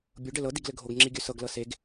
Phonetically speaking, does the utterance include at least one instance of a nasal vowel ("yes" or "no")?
no